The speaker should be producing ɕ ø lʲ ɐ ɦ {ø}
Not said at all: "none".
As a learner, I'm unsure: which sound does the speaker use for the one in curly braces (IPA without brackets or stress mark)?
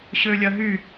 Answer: y